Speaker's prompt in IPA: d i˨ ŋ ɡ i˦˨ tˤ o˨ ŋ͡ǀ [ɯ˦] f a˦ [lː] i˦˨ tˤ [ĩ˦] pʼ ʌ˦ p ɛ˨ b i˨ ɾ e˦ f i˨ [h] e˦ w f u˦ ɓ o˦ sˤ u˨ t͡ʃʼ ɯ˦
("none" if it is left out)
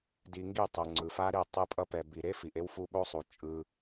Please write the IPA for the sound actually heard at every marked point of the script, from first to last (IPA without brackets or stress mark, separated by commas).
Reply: ɯ˨, ɾ, i˦, ʔ